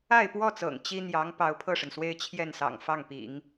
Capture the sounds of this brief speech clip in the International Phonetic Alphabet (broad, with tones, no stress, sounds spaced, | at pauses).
a˥˧ ɪ̯ p w ɔ˥˩ t͡s ɤ̰˨˩ ŋ t͡ɕ i˥ n̪ j ɑ˧˥ ŋ p ɑ˧˥ ʊ̯ pʰ ɤ˥˩ ʂ ə˩ n s w e˥ ɪ̯ t͡ɕʰ j ɛ˥˩ n s ɑ̰˨˩ ŋ f ɑ˥˩ ŋ p ḭ˨˩˦ ŋ